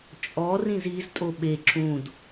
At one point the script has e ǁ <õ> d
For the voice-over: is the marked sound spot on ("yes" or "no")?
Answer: no